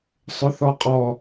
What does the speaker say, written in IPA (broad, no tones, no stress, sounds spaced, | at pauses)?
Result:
sˤ ʊ θ ɔ qʼ ɔ